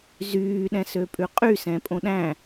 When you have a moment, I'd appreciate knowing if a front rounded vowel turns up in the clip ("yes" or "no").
yes